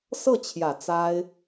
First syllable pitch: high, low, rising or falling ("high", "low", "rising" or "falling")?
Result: falling